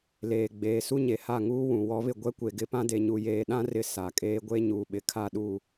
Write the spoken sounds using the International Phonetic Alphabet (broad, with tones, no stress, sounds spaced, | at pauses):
l eː˨ ɡ͡b eː˨ s u˦ ɲ e˨ h a˦˨ ŋ uː˦ w ũ˨ w ɔ˨˦ β ɪ˨ ɡʷ ɛ˦ kʷ e˨ ɡ ɪ˦ p ã˦ d e˨ ɲ u˨ j eː˨ ɗ ã˦ r ɪ˦ s a˨ kʼ eː˦ ɡʷ e˦ ɲ uː˨ ɓ ɪ˨ kʰ a˦˨ ɗ u˦˨